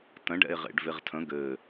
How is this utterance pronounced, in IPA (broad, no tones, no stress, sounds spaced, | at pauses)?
t ə̃ ɖ ɛ̰ e̯ ʁ ḛ ɖ v e ʁ tʰ ə̃ ɡ ɘ